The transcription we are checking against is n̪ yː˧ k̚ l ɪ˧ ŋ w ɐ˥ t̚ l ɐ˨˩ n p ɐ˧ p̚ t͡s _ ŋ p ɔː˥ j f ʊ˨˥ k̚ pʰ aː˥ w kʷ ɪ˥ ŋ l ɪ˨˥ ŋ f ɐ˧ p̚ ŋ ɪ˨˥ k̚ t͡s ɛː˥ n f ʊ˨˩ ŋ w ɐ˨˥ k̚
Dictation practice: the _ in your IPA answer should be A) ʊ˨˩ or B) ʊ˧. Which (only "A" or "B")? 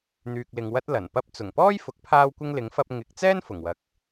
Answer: A